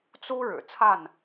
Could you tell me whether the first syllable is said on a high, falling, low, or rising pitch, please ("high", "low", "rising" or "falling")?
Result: high